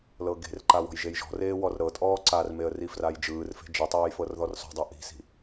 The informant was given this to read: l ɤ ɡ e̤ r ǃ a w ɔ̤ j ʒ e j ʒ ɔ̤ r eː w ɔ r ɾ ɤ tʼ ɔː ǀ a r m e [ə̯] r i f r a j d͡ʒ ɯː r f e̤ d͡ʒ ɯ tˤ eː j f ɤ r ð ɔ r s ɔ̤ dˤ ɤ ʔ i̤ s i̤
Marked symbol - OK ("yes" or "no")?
yes